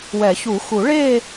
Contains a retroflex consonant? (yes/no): yes